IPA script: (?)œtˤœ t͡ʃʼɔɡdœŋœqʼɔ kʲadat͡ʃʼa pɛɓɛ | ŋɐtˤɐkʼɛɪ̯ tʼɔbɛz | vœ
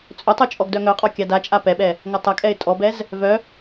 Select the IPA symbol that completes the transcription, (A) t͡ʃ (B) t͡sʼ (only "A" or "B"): B